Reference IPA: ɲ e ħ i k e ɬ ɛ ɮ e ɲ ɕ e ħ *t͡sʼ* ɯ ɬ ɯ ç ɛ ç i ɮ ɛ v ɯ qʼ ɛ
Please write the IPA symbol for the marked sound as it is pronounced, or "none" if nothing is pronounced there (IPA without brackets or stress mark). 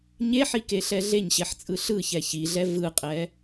t͡sʼ